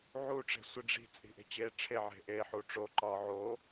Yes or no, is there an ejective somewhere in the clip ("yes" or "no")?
yes